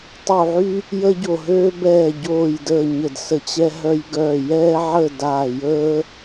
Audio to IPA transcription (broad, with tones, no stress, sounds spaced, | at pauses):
tˤ u˧˩ ʕ y˦ | j əː˦ ɟ o˧˩ ɦ øː˦ b ɛː˧˩ ɟ oː˧˩ j d əː˧˩ ɲ ə˧˩ d s ə˧˩ t͡ɕ ɛ˦ ɦ œ˦ j ɡ œː˧˩ j ɛː˦ ʕ ə˥˨ d aː˧˩ j əː˦